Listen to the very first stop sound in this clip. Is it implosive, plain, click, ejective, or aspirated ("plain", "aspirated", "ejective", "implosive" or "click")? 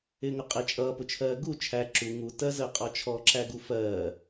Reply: ejective